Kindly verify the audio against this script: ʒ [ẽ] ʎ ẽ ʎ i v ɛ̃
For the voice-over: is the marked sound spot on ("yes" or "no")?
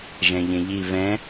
no